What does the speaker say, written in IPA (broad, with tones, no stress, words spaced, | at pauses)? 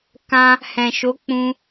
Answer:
kã˧ | hɛ̃˨ʃo˨˦ k͡pũ˧